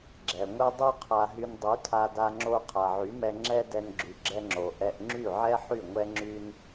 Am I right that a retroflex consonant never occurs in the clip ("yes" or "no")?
yes